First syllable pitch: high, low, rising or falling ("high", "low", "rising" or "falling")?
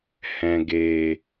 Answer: low